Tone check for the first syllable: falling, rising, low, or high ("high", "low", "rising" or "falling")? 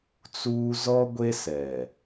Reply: high